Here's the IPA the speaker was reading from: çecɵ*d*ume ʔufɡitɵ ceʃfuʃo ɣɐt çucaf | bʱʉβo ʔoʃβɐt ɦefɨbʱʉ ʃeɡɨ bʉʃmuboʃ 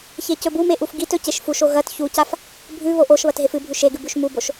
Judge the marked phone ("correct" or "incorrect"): incorrect